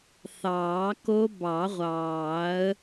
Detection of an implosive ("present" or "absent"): absent